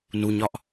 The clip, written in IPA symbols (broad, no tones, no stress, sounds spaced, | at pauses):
n u ɲ ɒ ʔ